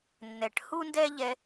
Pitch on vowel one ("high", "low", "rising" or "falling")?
low